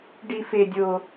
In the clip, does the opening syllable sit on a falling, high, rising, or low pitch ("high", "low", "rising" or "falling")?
high